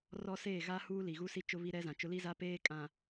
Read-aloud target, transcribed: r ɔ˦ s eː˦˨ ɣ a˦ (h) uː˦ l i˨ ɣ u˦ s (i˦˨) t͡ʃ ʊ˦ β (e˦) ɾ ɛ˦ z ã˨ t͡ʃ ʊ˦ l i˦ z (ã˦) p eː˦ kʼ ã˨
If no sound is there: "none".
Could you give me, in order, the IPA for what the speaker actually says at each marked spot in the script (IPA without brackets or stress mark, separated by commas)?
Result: h, i˦, i˦, a˦